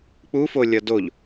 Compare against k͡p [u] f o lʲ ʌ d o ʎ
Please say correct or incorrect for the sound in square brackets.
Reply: correct